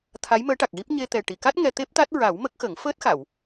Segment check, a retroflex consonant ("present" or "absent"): present